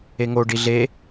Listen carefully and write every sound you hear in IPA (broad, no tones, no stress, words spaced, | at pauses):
eŋo ɖiɮe